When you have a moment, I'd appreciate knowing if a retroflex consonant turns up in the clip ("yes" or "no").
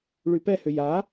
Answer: yes